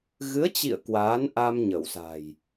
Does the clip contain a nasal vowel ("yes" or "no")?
no